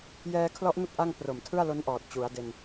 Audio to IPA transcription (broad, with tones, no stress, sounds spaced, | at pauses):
j ɛː˧ kʰ l ɔ˦˥ ʔ n u˦˥ k̚ ʔ a˥˩ ŋ p r o˨˩ m tʰ ɯ˥˩ a̯ l o˦˥ n ʔ ɔː˨˩ t̚ t͡ɕ u˩˦ a̯ d e˧ n